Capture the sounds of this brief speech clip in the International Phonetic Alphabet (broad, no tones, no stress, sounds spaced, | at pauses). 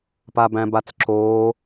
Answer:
p a b æ̃ b a t͡s ǁ oː